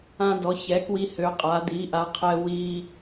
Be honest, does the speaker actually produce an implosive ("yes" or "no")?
no